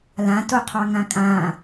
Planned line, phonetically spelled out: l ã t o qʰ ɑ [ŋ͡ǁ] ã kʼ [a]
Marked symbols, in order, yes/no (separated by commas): no, no